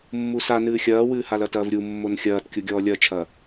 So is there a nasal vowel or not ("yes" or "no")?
no